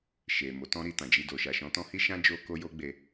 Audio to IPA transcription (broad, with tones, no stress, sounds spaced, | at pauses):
ʃ e˨ m o˨˦ t ɔ̃˦ ɾ i˧ t ã˨ d͡ʒ i˧ d o˨ ʃ a˨ ʃ ɔ̃˨˦ t ɔ̃˦ h i˦ ʃ ã˦ d͡ʒ o˧ k o˦ j o˦ ɡ͡b e˧